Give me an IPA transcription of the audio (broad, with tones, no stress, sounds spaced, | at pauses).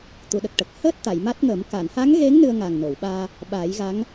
t̪ u˨˩˨ ɗ ə˨˩ k̚ ʈ ə˨˩ k̚ h əː˦˥ t̚ t̪ a˨˩˨ j m a˦˥ t̚ ŋ əː˨˩˦ m k a˨˩˨ n h a˧˥ ŋ ɣ e˧˥ ŋ n ɨ˧ ə̯ ŋ a˨˩ ŋ n o˨˩˨ w ɓ aː˧ | ɓ a˨˩˦ j ɣ a˧˥ ŋ